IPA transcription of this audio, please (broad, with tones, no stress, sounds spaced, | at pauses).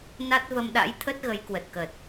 n a˦˥ t̚ v ə˧ m ɗ a̰˧˥ j t̪ʰ ə˦˥ t̚ ɣ ə˨˦ j k w ə˨˩ t̚ k ə˨˩ t̚